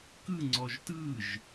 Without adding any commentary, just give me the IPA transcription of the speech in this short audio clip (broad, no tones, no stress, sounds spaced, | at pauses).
k ɯ ŋ͡ǀ ɔ ʒ t ɯ ʒ